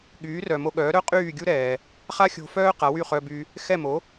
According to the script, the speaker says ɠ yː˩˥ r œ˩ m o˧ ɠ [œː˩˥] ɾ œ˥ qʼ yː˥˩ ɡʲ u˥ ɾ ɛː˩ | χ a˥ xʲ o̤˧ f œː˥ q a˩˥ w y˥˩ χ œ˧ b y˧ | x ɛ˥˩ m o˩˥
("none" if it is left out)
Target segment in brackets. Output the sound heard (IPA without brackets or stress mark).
œː˩˥